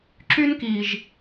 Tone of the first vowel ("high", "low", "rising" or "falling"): high